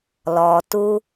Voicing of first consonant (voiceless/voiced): voiced